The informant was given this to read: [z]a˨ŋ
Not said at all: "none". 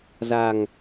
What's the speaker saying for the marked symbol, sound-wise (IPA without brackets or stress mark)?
z